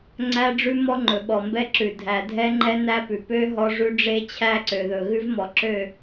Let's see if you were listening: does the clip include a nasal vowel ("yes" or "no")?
no